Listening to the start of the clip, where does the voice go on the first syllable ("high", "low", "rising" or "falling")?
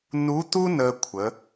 rising